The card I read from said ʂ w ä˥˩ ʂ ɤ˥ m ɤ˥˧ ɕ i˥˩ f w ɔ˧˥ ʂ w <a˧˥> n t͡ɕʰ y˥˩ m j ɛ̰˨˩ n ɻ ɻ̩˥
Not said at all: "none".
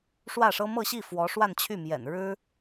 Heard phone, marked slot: a˥˧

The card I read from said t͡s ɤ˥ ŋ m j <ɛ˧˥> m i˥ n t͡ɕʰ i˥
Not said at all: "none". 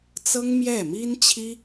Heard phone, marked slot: ɛ˥˩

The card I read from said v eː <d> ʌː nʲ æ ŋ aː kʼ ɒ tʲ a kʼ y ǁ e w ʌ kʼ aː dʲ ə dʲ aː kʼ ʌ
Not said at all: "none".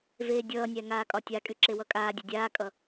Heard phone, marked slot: dʲ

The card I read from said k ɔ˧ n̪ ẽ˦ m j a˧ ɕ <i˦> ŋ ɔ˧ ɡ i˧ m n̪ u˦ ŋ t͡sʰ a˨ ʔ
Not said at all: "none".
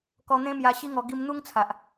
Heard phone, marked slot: i˦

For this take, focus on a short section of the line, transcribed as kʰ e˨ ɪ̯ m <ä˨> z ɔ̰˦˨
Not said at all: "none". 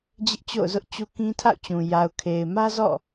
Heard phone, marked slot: ä˦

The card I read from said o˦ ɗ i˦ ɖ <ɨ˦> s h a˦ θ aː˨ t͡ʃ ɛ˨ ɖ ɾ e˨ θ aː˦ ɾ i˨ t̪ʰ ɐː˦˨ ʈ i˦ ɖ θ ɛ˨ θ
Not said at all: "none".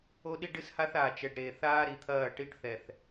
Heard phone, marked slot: ɨ˦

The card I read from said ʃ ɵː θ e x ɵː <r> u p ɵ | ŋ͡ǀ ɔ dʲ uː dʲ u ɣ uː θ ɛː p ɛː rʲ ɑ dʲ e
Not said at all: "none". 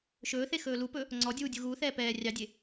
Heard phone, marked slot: l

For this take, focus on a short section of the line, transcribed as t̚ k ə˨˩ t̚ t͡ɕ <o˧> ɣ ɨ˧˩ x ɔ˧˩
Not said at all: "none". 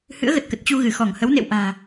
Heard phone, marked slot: u˧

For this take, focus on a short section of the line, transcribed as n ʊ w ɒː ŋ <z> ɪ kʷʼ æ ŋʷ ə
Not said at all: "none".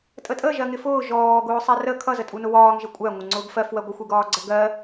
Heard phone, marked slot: ʒ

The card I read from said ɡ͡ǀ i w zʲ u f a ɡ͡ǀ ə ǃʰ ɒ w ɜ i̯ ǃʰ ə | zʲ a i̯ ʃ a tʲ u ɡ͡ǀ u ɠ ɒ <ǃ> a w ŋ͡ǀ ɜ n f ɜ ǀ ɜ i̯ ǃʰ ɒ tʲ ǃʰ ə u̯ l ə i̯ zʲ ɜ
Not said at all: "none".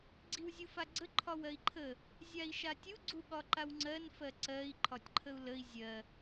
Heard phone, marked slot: ǃ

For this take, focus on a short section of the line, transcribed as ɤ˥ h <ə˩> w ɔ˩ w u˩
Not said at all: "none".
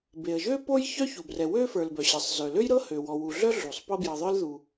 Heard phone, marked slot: ø˩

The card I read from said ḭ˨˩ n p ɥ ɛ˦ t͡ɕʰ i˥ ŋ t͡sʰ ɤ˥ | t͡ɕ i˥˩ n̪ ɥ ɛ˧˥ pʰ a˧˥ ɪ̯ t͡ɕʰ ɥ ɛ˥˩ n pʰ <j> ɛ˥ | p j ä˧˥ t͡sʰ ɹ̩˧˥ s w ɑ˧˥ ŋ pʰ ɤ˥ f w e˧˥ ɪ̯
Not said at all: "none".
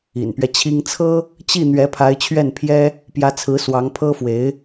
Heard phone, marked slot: j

